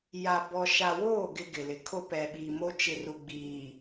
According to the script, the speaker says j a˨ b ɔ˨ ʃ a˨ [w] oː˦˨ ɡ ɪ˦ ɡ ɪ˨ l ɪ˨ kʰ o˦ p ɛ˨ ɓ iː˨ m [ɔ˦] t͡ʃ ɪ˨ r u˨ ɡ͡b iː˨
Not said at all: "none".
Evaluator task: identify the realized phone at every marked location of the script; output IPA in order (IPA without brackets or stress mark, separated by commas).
w, o˦